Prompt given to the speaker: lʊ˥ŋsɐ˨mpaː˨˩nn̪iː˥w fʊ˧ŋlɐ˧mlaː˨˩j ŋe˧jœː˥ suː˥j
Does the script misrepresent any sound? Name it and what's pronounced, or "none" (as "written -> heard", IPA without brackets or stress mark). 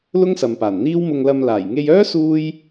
f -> m